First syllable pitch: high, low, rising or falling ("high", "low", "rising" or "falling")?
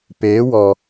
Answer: rising